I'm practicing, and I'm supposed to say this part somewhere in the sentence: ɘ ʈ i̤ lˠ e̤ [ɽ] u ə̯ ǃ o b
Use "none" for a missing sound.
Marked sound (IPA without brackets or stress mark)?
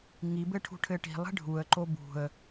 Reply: ɖʱ